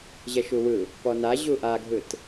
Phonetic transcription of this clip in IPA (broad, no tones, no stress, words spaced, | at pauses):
ʑɛʃuwɯ | pɔna ʑuʔaɡʱɯt